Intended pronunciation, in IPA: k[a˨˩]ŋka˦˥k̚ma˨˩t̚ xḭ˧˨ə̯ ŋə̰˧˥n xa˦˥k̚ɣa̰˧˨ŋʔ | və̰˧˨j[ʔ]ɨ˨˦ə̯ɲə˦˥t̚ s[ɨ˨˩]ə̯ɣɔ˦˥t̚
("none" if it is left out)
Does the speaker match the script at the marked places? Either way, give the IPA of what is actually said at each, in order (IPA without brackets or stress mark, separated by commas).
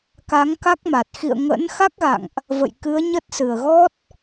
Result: a˨˦, k, ɨ˨˩